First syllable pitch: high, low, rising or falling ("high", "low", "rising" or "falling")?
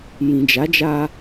low